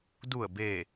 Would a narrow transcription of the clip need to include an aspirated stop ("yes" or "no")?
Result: no